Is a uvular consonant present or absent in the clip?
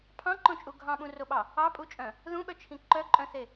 absent